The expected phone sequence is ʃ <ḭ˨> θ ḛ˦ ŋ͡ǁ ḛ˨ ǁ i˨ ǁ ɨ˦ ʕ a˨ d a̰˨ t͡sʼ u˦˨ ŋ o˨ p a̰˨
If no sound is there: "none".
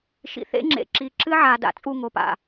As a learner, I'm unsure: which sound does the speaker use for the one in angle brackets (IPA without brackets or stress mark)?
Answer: ḭ˨